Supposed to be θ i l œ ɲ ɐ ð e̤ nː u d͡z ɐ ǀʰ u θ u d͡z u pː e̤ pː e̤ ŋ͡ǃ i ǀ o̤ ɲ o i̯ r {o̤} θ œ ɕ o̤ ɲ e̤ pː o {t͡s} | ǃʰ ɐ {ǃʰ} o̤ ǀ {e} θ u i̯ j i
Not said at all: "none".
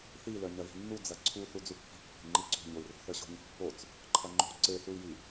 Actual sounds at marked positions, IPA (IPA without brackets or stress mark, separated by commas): o̤, t͡s, ŋ͡ǃ, e